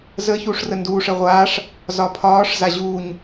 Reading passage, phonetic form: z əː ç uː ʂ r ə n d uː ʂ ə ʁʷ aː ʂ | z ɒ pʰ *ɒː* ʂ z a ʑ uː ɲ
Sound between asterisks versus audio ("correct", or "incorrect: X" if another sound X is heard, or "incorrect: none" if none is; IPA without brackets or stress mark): correct